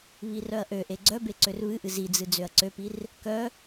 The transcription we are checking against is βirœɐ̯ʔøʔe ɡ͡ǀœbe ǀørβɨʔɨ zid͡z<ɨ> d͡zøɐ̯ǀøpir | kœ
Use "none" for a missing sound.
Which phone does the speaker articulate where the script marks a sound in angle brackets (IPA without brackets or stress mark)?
ɨ